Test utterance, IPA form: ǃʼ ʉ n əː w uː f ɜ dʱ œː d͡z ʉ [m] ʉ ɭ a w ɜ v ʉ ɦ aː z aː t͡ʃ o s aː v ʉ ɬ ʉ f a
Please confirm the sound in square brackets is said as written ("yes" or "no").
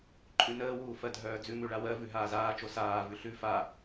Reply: yes